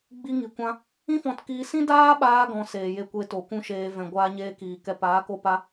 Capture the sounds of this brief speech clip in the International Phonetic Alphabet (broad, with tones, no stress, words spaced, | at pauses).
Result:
ɡ͡bi˧ŋi˨kʷã˧ | ĩ˦fɔ̃˧tkiː˧sĩ˦ daː˦ɓaː˧ɡɔ̃˨ seː˨je˧kʷe˧to˨ kʷũ˦ʃeː˧ vɛ̃˨ɡʷaː˧ɲeː˧kiː˨ kɛ˨paː˨˦ko˧pa˧